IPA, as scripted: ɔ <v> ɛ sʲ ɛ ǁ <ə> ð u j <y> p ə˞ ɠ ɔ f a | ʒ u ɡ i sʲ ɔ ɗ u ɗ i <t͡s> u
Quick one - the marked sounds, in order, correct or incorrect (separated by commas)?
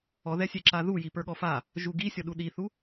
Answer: incorrect, incorrect, incorrect, incorrect